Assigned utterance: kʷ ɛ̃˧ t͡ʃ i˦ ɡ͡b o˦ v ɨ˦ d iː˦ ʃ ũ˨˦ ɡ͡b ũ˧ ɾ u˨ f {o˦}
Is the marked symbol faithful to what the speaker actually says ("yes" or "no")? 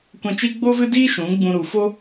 yes